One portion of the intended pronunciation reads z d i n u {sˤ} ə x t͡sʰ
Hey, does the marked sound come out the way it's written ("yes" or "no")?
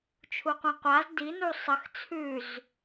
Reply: yes